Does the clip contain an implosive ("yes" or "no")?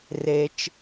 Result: no